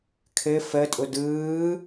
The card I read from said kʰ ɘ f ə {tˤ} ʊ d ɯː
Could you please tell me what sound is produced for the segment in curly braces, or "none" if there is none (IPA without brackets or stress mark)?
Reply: tʼ